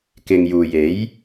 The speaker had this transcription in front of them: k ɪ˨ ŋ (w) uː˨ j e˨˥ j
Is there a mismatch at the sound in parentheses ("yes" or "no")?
yes